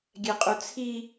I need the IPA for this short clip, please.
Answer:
ɡʲ ɛ qʼ u t͡sʰ i

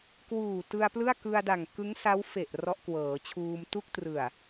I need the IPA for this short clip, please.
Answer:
k w uː˨˩ t ɯ˧ a̯ p l ɯ˥˩ a̯ k ɯ˧ a̯ d a˨˩ ŋ k ɯ˦˥ ŋ s a˦˥ w f e˨˩ ʔ r ɔ˦˥ ʔ k w ɤː˩˦ t͡ɕʰ uː˧ m t u˥˩ k̚ t r ɯ˨˩ a̯

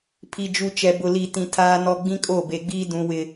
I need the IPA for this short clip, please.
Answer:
pʰ i˨ d͡ʒ u˨ t͡ʃ ɛ˨ b ʊ˨ l i˨ t ĩ˨ tʰ aː˦ n ɔ˦ ɡ͡b ĩ˦ kʼ o˦˨ b e˨ ɡ͡b iː˦ d ũ˨ w ɪ˨

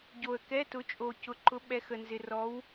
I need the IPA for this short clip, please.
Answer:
ɟ o˨ ə̯ k ɛ˧˥˧ t ʊ˨˥ t͡ʃʼ o˨ c ʊ˨ ǃ ʊ˨˥ ɓ ɛ˨˥ x ə˨ n z ɪ˨ r ɔ˨˥ w

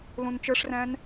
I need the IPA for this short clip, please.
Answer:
l ũ n t͡ʃ ə˞ ʂ r æ̃ n

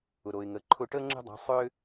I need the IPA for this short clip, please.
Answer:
ʊ˩ ɾ o˩ ɪ̯ ŋ ə˩˧ ǃʰ ʊ˧ ʈ əː˥ ŋ͡ǁ ə̤˥ dˤ a̤˧˥ sˤ ʏː˥

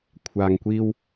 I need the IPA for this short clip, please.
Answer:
kʷʰ aː˨ ŋ kʷ iː˧ w

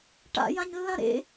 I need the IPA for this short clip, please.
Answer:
ʈ a̰ j ã ɲ lː ã ɾ ḛ

